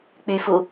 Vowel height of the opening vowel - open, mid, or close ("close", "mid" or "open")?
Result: close